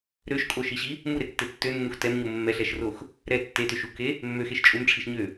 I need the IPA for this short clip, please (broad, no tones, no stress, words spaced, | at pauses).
ɾøʃkʼoʃiɕi | muɾetːe tːønːux tɛmɲo mːɛɬɛʃrox | ɾɛ tːetøʃ uke | mːøxeʃ t͡ʃʼumʈ͡ʂʰiʃɲø